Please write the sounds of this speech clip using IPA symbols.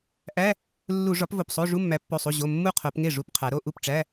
ʔ æ˧˥˧ | lː u˧˩˧ ʐ ɒ˩˥ p v o˩˧˩ p sˤ o˧˥˧ ʐ u˧˥˧ mː æ˩˥ pː o˩˧˩ sˤ u˩˧˩ ʑ o˩˧˩ mː u˥˩ qʰ o˧˩˧ p ŋ e˥˩ ʐ u˧˥˧ p qʰ æ˩˧ ɾ o˧˥˧ ʔ u˥˩ p ʈ͡ʂ æ˧˥˧

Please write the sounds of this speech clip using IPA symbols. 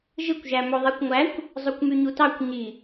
ʒ ɯ kʷ ʒ æ m o ðˤ e kʷ ŋʷ æ kʷ | zˤ o kʷ m y ɲ u t ɑ kʷ ɲ i

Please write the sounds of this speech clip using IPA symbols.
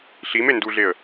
ɬ i m e n d u ɮ e ə̯

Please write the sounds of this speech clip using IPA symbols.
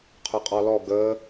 qʰ ʊ qʼ ɔ l ɔ ɡ ə

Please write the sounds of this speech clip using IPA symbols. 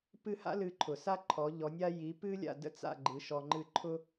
p ɨ˥˩ h a̰˥ l ɨ˧ ǃʰ ʊ˩ s a˥ ǃʰ ɔ˩˥ ʎ ɔ˩˥ nʲ a˥ j i˩˥ p ɨ˥ lʲ a̰˥˩ d ə̰˥ t͡s a̰˥˩ ɡ͡ǃ ɨ˩˥ ʃ ɔ˧ ŋ͡ǃ ɨ˥˩ ǃʰ ʊ˥

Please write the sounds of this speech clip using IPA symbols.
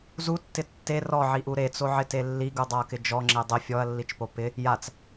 z u tː ɪ tː e r ɔ ʕ i ʔ u ɾ e t͡s o ʕ ɪ t e lː i ɡ u dˤ a ɐ̯ k ɪ d͡ʒ ɔ ŋ͡ǁ e dˤ ɪ fʲ ɔ ɐ̯ lː i t͡ʃ p o p ɪ | j a t͡s

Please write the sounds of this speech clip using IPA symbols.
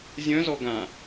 zʲ œ̃ z ɔ ɡ ã

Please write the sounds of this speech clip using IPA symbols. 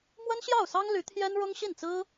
m w ə˥ n ɕ j ɑ˥˩ ʊ̯ s ɑ˥ ŋ l y˧˥ t̪ʰ j ɛ˥ n ɻ ʊ˥ ŋ ɕ i˥˩ n t͡s ɹ̩˥

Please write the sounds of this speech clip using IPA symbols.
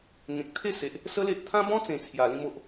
ŋ ẽ˨ k̚ t̪ʰ e˥˧ s e˨ ʔ | s ə˦ l e˦ ʔ t̪ʰ ã˦ b ɔ̃˦ t͡s ẽ˨˩ t͡sʰ j a˨˩ l ĩ˧ m o˨ ʔ

